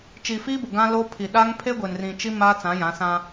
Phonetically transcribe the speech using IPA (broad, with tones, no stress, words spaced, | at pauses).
t͡ʃi˨fiː˦bʊ˨ ɡã˦loː˦pʰi˨ ɗa˦ŋ pʰe˦ɡʷe˨n rĩ˨t͡ʃi˦ maː˦t͡sã˨˦jã˨˦sã˦